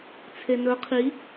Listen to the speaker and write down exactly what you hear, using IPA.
t͡sʰenɵ qʰi

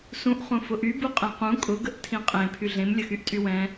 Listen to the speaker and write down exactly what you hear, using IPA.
sũʔχũ fʊʔybuqʼẽ qũ kʼʊɡəʔ tʰĩqʼẽ pʰyɮẽmlʲə xyʔtʼywɛ̃

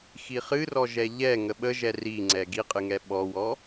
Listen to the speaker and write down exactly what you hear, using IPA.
xiχɨrɔ ʒɛʎɛ ŋəɓəʒɛ riŋ͡ǀɛ ɡiqʼɨŋɛ ɓɔwɔ

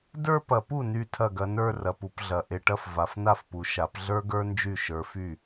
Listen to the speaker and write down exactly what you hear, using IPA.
də˞˥˧pɐ˨˩˦pu˥˩ ny˥˩tʰɐ˥˩ɡɐ˨˦nə˞˥˧ rɐ˨pu˨˦pɮɐ˨˩˦ ʔe˨ʈɐ˥˧f va˨fna˥˩fpu˨ʃa˨˩˦p ɮə˞˥ɡə˞˥nd͡ʒy˥˩ ʃə˞˨˦fy˥˩

